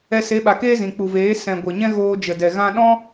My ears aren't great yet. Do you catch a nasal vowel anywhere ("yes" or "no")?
yes